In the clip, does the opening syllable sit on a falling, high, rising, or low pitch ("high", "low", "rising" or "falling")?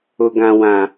high